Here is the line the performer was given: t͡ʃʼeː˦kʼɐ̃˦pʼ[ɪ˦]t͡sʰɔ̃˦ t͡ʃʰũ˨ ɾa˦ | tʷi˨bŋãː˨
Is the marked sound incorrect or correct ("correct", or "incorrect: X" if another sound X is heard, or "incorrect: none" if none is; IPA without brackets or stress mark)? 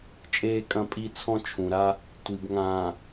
incorrect: i˦